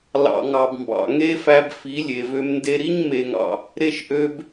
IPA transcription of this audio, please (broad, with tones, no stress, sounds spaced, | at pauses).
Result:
l ɑ̰˨ ŋ ɑ˨ b m b ɑ̰˨ ŋ e˦ f æ˧ b f i˨˦ lʲ e˨ v ø˧ m n d e˧ ɾ i˦ ɲ m e˧ ŋ ɑ̰˧ | ɾ e˦ ʃ ʔ ø˦ b